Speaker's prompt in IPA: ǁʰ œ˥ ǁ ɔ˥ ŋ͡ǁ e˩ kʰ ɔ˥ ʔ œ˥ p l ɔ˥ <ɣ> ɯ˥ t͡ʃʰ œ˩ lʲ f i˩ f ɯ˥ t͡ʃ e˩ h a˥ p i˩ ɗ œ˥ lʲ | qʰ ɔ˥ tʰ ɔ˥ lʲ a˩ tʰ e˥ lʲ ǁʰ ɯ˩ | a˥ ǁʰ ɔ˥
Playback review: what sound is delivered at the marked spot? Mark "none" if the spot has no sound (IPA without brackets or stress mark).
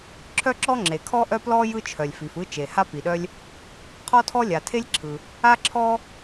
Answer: j